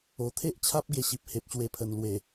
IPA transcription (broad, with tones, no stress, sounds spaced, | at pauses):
o˨˩ t̪ʰ e˦ ʔ t͡ɕʰ a˦ p̚ ɡ e˧ ɕ i˨ p̚ h e˨ p̚ ɕ w e˧ pʰ ə˨˩ n l w e˨˩